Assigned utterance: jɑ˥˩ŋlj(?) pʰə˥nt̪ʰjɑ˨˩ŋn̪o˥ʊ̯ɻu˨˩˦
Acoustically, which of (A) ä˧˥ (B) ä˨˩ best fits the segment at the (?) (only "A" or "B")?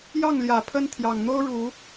B